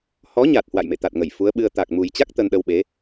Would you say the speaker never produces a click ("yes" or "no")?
yes